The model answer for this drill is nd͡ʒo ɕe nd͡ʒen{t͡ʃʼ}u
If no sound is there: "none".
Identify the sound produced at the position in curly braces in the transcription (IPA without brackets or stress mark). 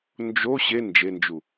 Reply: d͡ʒ